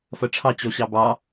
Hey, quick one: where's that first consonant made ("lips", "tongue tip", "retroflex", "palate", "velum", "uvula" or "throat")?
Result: lips